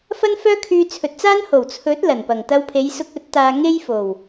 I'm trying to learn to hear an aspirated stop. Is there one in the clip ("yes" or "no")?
yes